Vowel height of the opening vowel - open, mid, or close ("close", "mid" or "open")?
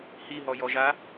close